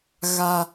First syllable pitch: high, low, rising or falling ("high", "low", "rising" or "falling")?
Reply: high